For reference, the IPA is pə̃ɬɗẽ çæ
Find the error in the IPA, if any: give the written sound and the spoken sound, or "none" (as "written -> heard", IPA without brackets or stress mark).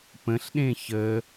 æ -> ə